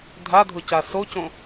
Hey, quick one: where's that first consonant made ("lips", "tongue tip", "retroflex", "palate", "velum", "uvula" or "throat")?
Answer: tongue tip